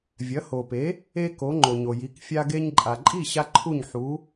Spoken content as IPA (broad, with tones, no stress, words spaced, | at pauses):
vʲɐ˩˥ho˩pe˩˥ | e˥ko˩˥ ŋ͡ǃo˩ɲo˩ji˩˥k fʲa˧ɡe˧ɲǃʼa˩ǃʼi˥˩ ɕa˥ǃʰu˥˩ɲħu˩˥